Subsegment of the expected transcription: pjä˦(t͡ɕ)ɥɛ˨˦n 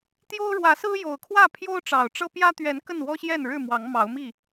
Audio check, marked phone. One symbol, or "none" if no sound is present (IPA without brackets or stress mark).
t̪